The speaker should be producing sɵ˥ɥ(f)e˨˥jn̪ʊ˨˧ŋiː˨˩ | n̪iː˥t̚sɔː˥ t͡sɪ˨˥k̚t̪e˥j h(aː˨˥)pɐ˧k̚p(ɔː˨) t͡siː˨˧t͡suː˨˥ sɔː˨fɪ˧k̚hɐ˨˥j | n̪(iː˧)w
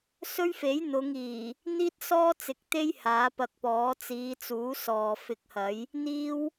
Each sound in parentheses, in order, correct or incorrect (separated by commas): correct, correct, incorrect, incorrect